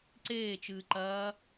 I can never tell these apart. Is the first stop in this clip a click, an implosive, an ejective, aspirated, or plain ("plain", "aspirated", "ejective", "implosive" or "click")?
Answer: click